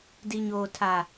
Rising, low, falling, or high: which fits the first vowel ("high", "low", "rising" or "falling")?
low